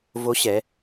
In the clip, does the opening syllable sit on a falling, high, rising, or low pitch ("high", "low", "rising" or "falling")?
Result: rising